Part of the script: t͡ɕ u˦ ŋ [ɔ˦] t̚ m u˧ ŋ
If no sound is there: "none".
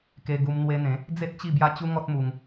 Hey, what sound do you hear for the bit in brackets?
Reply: ɔ˦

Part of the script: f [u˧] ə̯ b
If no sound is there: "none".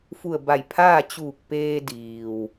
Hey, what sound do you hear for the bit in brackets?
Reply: u˧˩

